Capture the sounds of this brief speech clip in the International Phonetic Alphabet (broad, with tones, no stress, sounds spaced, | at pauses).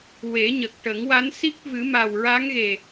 w e˨˩˦ ɲ ə˨˩ k̚ ʈ ə˨˩˦ ŋ w a˧˥ n s i˦˥ k̚ v ɨ˨˩˦ m a˨˩ w ɹ a˧˥ ŋ ɣ e˨˩